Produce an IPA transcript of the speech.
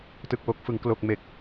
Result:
tɯ˨˩k̚wo˨˩k̚fɯ˩˦ŋ klo˨˩k̚ me˨˩k̚

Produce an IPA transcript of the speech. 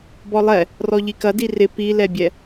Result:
bɔlˠɛ | rɔʎikɐdi rɪ pilɛbʲɛ

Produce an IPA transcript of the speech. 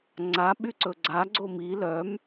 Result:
ŋ͡ǀa ɓyǀɵɡ͡ǀa ɡ͡ǀomi lœm

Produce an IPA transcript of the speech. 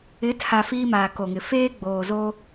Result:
ɪ˨˦tʰa˨ fiː˦maː˨ko˨ŋɪ˨ feː˦ ɡ͡boː˨zoː˦

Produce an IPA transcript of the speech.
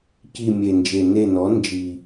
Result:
ci˦˨mʲe˨˩nd͡ʒe˨˩ ne˦˨nɔ˩˥nd͡ʒi˨˩

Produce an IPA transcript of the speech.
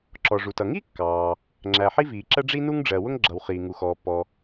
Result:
ǁɔ˩ʐu˩tʌ˩ ŋi˥kːɑː˩ | ŋ͡ǁæ˩ ħi˥viː˩ǁɜ˥ ɖ͡ʐi˥nu˥ŋɖ͡ʐɜ˩wʊ˥ŋ ɡ͡ǁʌ˩w χiː˩ŋu˩xɔː˩pːɔ˩

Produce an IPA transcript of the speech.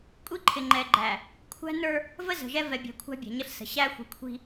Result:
kʷʼi˦ǃʰɪ˨ŋ͡ǃɛ˨ɡ͡ǃæ˨ | kʷʰæ̤˦nə˞˦ | və˦zə̤˨ʒɛ˦ vɛ˨bʲæ̤˨ kʷʰæ̤˦bʲæ̤˨ɲə˦ɬsə̤˨ ɕæ˦xʷi̤˨kʷʰi̤˦

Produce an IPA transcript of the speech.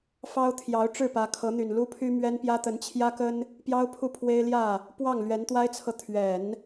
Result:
fɑ˥ʊ̯ t̪ʰjɑ˧˥ʊ̯ʈ͡ʂɻ̩˥˩pä˧˥ kʰɤ˧˥n̪y˨˩nlu˥pʰy˥ mɥɛ˥npjä˥t̪ə˧˥n t͡ɕʰjä˥kə˥n | pjɑ˥ʊ̯ pʰu˥˩pʰwe˥ɪ̯ ljä˥˩ | pwɑ˥˩ŋlɥɛ˧˥nt̪wa˥ɪ̯t͡sʰɤ˨ t̪ʰɥɛ˨˩˦n

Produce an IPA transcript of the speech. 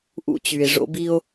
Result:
ʔṵ˦t͡ɕy˨e̯ ʐo̰˦bi˦o̯

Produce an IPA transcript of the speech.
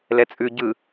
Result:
lɛt͡sʼʉ ɟɯ

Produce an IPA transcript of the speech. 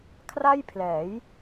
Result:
kʰra˥˩jpʰlɛː˩˦j

